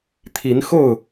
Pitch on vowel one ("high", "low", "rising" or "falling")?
rising